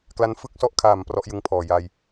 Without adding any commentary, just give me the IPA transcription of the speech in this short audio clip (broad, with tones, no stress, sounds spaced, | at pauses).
k l a˦˥ n f ɯ˦˥ k̚ s ɔ˦˥ ʔ kʰ aː˨˩ m p r ɔ˦˥ ʔ j ɯ˧ ŋ pʰ ɔː˨˩ j a˧ j